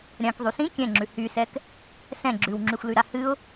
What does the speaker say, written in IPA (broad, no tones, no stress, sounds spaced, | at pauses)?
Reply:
ɾʲ ã k ðˤ y s ĩ kʲ ɛ̃ ŋ͡ǁ ʉ h y s ɛ k | s ɛ̃ ɡ͡ǁ ʉ w ŋ͡ǁ y xʷ l y ɾ a h ɨ ʊ̯